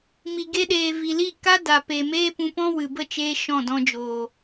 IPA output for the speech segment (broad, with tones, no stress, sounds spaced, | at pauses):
m i˨ ɡ e˧ ɗ eː˨ v i˨ l i˦˨ k a˦ d a˨ p e˨ m eː˦ p ũ˧ p ɔ̃˦ w ɨ˨ b ə˦˨ t͡ʃ eː˧ ʃ ɔ̃˦˨ d ɔ̃˧ d͡ʒ oː˨